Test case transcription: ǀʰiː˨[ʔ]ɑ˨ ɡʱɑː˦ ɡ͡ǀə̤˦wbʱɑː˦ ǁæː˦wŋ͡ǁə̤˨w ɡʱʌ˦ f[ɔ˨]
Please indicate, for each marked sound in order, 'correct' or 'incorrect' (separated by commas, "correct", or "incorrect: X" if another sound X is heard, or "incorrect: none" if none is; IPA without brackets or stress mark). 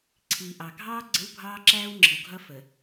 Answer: correct, incorrect: ə˨